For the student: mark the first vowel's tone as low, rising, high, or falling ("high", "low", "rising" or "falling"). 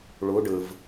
rising